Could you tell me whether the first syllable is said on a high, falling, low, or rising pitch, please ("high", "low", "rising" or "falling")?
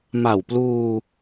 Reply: low